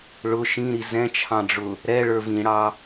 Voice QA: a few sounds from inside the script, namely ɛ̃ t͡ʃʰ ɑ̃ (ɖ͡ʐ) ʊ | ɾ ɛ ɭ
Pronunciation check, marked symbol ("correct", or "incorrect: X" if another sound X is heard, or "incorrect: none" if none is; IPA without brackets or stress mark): correct